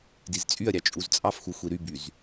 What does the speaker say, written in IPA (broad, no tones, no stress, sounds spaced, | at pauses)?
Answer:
d i z t͡sʼ y ɐ̯ ɾʲ ɑ t͡ʃʼ u z t͡sʼ ɑ f x u xʷ i ɾ y b y z